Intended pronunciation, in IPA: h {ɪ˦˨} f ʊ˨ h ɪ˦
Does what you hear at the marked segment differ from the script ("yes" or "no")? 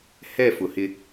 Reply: yes